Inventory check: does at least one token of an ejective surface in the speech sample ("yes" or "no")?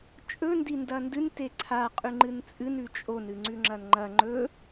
yes